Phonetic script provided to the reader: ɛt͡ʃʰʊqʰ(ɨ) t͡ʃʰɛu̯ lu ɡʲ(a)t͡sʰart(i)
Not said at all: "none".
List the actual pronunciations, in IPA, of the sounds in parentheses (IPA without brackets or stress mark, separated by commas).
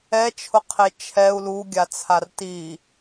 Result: e, a, i